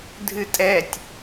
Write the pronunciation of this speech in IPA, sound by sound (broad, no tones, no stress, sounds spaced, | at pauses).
dʱ ɨ tʼ ɛ tʲ